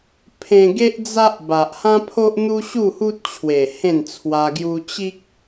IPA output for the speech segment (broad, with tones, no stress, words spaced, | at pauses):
pʰẽ˧ɡe˦ʔd͡za˦ʔ ba˨ʔhã˦pʰo˦ʔn̪u˦ ɕu˥˧hu˦t̚t͡ɕʰwe˨˩ hẽ˥˧nt͡sʰwa˧ɡju˦ t͡ɕi˦k̚